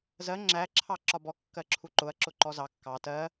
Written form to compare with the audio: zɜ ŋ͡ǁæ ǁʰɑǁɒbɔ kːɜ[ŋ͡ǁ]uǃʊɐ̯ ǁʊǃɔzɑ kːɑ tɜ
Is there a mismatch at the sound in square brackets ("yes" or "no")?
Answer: yes